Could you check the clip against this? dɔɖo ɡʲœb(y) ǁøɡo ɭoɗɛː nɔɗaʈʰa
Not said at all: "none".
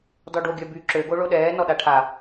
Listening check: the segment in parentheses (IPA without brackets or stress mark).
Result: y